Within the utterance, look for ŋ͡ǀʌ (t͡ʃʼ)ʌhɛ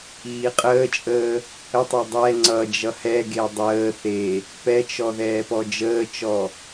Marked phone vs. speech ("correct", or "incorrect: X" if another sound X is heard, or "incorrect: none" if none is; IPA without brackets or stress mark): incorrect: d͡ʒ